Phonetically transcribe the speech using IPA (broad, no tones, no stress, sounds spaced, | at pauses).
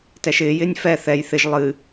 t ɛ ʃ ɪː j ɪː nʲ f ɛ θ ɛ j θ ɪ ʒ lˠ ɨ